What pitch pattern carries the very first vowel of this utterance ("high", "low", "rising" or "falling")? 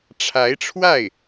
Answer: rising